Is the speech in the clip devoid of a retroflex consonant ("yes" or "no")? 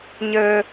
yes